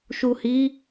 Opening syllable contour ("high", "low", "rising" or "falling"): low